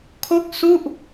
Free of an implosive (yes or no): yes